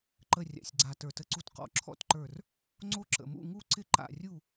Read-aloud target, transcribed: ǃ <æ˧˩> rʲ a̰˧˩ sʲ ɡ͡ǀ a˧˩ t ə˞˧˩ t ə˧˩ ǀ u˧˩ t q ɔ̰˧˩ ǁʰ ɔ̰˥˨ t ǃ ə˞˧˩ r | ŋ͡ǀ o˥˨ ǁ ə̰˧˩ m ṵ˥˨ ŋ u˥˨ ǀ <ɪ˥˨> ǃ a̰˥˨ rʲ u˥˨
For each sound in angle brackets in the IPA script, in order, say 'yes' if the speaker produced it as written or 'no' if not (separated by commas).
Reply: no, yes